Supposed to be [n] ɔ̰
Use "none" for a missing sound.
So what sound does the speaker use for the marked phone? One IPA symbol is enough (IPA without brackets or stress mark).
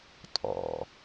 tʼ